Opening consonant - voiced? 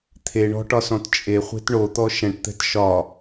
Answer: no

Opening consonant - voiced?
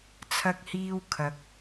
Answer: no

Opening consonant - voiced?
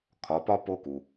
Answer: no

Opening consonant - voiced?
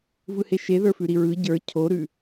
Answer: yes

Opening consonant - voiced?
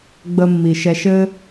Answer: yes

